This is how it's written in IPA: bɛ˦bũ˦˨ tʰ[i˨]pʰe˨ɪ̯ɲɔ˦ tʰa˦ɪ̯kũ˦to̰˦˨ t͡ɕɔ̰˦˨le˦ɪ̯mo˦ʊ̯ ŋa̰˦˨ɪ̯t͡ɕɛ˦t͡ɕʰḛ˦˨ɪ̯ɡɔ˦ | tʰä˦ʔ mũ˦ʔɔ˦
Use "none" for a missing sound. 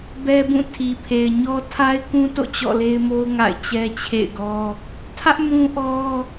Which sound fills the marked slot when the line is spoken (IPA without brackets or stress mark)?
i˨